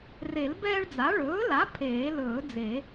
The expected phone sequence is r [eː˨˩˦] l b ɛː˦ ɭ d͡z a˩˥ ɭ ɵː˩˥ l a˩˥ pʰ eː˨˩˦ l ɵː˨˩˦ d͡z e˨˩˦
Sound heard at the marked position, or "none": e˨˩˦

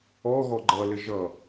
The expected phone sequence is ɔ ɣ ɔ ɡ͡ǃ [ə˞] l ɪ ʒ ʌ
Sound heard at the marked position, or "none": ʌ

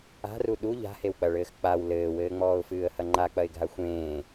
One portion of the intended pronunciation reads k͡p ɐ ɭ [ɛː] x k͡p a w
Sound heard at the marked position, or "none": ɘː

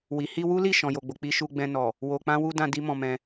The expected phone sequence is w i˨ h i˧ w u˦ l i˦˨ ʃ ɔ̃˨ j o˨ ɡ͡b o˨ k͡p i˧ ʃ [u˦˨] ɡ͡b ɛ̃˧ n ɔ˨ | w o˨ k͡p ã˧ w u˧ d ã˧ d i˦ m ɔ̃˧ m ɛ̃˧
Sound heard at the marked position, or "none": u˧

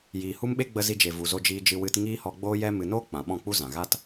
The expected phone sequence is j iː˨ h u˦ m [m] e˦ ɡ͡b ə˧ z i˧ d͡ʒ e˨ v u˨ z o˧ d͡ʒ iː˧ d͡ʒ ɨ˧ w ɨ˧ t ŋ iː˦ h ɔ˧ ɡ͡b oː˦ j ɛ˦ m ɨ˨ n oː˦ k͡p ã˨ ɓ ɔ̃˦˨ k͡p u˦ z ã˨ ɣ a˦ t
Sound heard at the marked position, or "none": ɓ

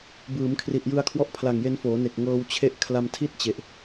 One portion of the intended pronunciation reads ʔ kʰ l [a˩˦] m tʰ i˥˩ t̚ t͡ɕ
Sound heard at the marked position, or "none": a˧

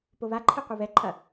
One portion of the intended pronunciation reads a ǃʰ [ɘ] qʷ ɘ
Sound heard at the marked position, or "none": e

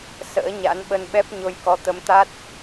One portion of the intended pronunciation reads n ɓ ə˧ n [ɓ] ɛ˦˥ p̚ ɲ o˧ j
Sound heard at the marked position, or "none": ɓ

